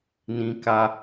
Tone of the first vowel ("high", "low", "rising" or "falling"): high